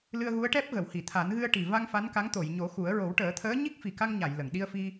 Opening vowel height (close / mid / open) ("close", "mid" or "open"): close